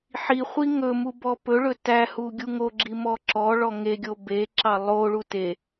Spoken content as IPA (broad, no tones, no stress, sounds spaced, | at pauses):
ħ i χʷ i ŋ ɵ m u b ɔ p ɵ ɭ ɵ t æ h u ɡʲ u ŋ o ɡ͡ǁ i m ɔ ǁ ɔ ɭ ɔ ŋ e ɡʲ o b e ǁ ɑ lˠ o ɭ u t e